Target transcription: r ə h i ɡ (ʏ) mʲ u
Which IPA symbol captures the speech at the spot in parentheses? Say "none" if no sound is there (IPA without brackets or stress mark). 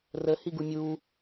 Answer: u